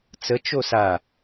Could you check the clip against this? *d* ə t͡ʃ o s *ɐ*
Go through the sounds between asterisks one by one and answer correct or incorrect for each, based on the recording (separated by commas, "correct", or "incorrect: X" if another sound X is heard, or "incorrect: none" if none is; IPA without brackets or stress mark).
incorrect: t͡s, incorrect: a